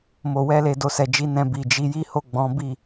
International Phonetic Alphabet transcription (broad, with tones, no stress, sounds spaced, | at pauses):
m o˨ w ɛ˧ l e˨ d o˨ s ɛ˨ d͡ʒ i˨˦ n ɛ̃˧ b i˨ d͡ʒ i˨˦ j i˦ h o˦˨ ɡ͡b ɔ̃˨˦ b i˦˨